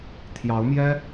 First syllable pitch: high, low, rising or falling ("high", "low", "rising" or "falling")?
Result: rising